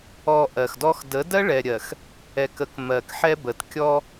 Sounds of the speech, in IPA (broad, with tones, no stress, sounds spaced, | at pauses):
ɔ˨ ʔ ɜ˨ x d ɔ˦ x d ə˨˦ d ɜ˦ ɭ ɛ˨ ɾʲ ɜ˨ x | ɛ˨ k ə˨ k m ɜ˨ k ħ ɛ˦ b ə˨ t kʲ ɔ˦